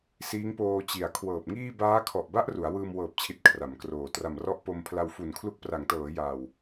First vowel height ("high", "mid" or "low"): high